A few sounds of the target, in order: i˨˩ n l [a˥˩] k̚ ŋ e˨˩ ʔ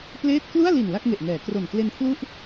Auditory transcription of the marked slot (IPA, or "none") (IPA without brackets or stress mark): a˥˩